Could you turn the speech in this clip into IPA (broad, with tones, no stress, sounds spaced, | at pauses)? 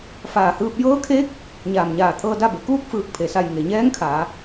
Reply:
f aː˧˩ h ɯː˧ p̚ j ɤː˧˥ kʰ eː˧˥ k̚ | ɲ aː˧˩ m ɲ aː˧˩ t̪ʰ ɤː˧ d a˥˨ b e˩˧ k uː˥˨ k̚ f ɯː˧˩ k̚ pʰ e˩ s a˧˩ j ŋ e˩ ɲ ɛː˧˥ ŋ kʰ aː˩˧